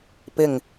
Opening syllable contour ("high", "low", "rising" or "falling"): low